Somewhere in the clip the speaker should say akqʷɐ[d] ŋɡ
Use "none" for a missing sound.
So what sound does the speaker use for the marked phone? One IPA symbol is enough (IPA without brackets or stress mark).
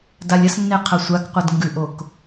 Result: d